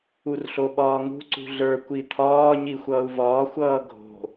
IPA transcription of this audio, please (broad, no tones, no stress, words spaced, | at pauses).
urɬoɓɒːŋṳ ǀṳɮə˞ kʷit̪ʰɒː ɲixʷʌːu̯vɒː xʷʌːɡʱo̤